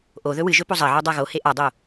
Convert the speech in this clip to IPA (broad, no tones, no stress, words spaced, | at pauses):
ʔo ðɵwɨʒɵ pozˤɐʕo dˤaɣohe ʔadˤo